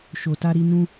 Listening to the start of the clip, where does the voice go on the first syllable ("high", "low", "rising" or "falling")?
low